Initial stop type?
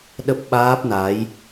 implosive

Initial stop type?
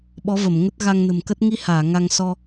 implosive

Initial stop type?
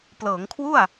plain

